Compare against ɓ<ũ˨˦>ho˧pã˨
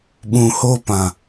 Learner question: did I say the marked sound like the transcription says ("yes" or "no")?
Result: no